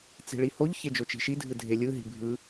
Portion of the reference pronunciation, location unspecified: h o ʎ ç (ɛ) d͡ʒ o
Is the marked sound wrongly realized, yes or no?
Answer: yes